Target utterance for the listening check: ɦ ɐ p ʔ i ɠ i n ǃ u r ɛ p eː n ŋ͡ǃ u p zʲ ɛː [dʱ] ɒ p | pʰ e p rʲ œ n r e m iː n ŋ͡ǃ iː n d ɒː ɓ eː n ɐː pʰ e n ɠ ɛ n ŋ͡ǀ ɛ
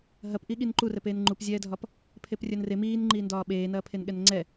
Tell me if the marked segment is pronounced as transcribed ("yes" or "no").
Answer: yes